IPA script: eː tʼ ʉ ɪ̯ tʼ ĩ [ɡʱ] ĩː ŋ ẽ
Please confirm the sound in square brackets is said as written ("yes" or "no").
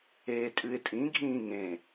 yes